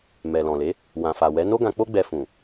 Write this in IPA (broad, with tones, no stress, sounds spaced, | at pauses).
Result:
m ɛ˨ l ɔ̃˨ l e˨˦ | w ã˨ f a˨ w ɛ˨˦ n o˦ ɡ ã˧ k͡p o˦ ɡ͡b ɛ˧ f ũ˨